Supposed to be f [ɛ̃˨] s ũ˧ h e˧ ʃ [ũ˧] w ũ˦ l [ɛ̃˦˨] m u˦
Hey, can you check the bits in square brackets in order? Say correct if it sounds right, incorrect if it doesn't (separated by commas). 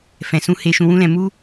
correct, correct, incorrect